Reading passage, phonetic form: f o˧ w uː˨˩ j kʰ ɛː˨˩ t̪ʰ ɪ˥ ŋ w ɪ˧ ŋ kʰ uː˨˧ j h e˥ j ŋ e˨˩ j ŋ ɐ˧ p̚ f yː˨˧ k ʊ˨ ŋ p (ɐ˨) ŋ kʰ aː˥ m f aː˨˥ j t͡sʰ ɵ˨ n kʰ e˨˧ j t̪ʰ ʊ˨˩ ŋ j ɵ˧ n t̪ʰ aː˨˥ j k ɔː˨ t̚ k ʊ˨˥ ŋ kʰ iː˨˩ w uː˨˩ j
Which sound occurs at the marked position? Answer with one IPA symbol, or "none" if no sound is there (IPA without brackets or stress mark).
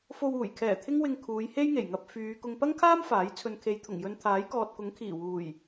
ɐ˥